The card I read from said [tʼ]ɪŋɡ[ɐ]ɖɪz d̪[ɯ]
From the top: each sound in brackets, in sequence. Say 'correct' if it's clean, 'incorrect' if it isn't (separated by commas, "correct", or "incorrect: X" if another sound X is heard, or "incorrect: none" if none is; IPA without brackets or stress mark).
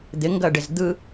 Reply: incorrect: d̪, correct, correct